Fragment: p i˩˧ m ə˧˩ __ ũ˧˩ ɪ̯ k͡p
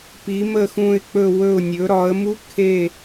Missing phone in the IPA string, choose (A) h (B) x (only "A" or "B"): B